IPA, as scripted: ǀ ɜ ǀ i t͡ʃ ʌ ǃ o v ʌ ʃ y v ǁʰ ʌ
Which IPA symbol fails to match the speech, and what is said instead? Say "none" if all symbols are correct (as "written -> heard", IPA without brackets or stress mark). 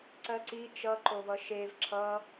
y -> e